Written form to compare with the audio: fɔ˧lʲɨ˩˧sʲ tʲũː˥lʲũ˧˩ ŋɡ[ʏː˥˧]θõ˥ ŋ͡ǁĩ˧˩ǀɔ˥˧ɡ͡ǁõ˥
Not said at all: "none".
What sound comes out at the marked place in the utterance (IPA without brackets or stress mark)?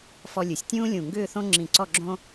ʏː˥˧